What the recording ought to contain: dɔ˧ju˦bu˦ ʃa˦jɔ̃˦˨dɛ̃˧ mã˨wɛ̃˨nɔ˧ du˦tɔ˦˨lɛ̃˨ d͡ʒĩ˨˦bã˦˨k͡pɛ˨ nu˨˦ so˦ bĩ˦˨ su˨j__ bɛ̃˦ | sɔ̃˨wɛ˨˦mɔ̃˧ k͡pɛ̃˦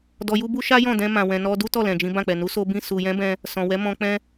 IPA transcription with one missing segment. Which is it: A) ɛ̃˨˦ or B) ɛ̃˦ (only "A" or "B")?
A